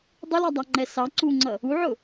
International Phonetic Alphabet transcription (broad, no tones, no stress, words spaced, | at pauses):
dˤʊlɑdˤɑŋ͡ǃɛ sɑ ǀuŋ͡ǀʌ | uʕʊ